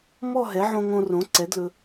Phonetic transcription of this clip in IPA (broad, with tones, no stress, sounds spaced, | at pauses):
m ɔ˥˨ ɦ ɛ˩˥ ʕ õ˧ ŋ õ˧ r õ˩˥ ǀ ɛ˩˥ d l ɵ˧